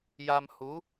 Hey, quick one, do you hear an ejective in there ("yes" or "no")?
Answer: no